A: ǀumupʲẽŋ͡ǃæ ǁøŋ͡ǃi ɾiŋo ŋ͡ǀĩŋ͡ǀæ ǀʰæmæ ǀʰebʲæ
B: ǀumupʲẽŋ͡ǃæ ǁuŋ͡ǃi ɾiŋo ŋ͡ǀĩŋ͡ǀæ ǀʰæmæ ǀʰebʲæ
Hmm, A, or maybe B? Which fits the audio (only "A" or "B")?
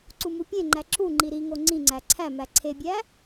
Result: B